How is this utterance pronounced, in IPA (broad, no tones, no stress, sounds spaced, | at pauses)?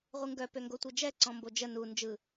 ʁʷ ɯ ŋ ɡ œ p ø ŋ ɡ o tʷ ɯ d͡ʒ ɛ ǀ ɔ̃ m b o d͡ʒ ə n u n d͡ʒ ɯ